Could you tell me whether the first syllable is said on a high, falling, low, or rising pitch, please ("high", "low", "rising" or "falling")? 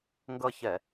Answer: falling